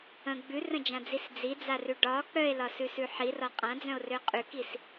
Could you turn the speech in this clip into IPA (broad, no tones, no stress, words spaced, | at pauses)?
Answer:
ə̃ ɡ͡bʉrə̃d͡ʒãd͡zis d͡zid͡zarʉ ɖɒ k͡pœe̯lɒsʉsʉ ħirɒ qʼãd͡zœ̃o̯rø qʼʉkis